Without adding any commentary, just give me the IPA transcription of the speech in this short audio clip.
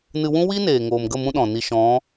nɨ˧wũ˦ wi˦neː˨ ŋoː˨mɡə˦˨ mũ˦ɗɔ̃˨ni˧ ʃɔ̃˨˦

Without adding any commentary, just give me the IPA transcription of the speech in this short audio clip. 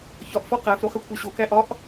çɒʔfɒ qæfɾo χekʷʰæɕokæ ʔɒʔ

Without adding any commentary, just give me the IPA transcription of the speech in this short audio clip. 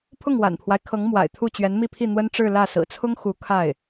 pʰʊ˥˩ŋwa̰˨˩npʰwa˦ɪ̯kʰɤ˧˥ŋ mwa̰˨˩ɪ̯t̪ʰu˥˩ t͡ɕɥɛ˧˥nmi˥˧pʰi˥˩n̪wə˥n ʈ͡ʂɻ̩˥˧lä˥˩ sɹ̩˨˩t͡sʰʊ˥ŋ xu˧˥kʰa˥˩ɪ̯

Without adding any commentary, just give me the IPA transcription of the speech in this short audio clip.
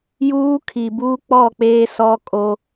juː˦kʰi˨buː˦k͡pɔ˦˨ k͡peː˦sɔ˦kʼo˦

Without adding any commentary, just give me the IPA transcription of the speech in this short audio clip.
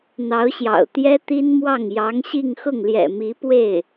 n̪ɑ˧˥ʊ̯ɕjɑ̰˨˩ʊ̯t̪jɛ˥ t̪i˥nmwɑ˥˩ŋ jɑ˧˥ŋ ɕi˥˧ŋxʊ˥˩ŋ ljɛ̰˨˩ mi˧˥pwe˥˩ɪ̯

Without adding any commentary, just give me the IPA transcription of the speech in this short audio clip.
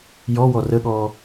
jɔwɔ rəɠɔ

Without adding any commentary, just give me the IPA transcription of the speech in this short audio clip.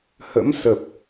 hə̰˧˥msə˨˩p̚

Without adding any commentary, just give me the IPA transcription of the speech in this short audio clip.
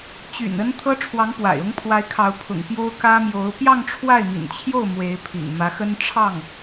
t͡ɕy̰˨˩nə˥n t̪ʰɤ˥ʈ͡ʂʰwɑ˧˥ŋpwa̰˨˩ɪ̯ ʊ˧˥ŋpʰwa˧˥ɪ̯kʰɑ˧˥ʊ̯ pʰʊ̰˨˩ŋ pjo˥ʊ̯ kä˥mjo˧˥ʊ̯ pjɑ˥˧ŋʈ͡ʂʰwa˥˩ɪ̯mḭ˨˩nt͡ɕʰjo˥˩ʊ̯ mwe˧˥ɪ̯pʰḭ˨˩ŋ mä˧˥xə˥nʈ͡ʂʰɑ˥˩ŋ

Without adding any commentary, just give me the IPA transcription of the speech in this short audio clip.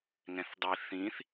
ŋɛ̃θdˤi θĩθ

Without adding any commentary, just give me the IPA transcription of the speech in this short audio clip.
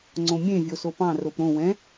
ŋ͡ǀõmʲẽ vʲosopɑ̃ ropɾõ wɛ̃

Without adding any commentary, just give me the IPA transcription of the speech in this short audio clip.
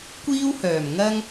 kʷiː˥whœː˨˩mŋɐ˥ŋ

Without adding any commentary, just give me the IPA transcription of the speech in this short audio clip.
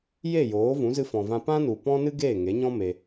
je˦˨joː˨˦ vũ˨˦zɨ˧fɔ̃˨vã˧ pã˦nu˨ pɔ̃˦ nɨ˦ɡeː˦˨ŋe˨˦ɲɔ̃˦ me˧

